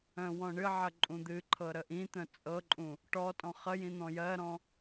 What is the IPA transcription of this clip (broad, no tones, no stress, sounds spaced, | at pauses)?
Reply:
œ̃ w ɔ̃ ɳ ɨ ʕ ə ǃʼ ũ d̪ ɨ ǃʰ ɤ ɾ ə ʔ ĩ t̪ œ̃ t͡sʼ ɤ ǃʼ ũ | ʈ ɔ tʼ ɔ̃ χ ə j ĩ n̪ ɔ̃ j ɜ ɾ ɔ̃